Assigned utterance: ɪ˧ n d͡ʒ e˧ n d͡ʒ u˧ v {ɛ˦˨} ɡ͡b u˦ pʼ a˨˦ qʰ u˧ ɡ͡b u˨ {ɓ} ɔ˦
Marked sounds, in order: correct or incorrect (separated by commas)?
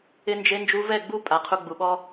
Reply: correct, correct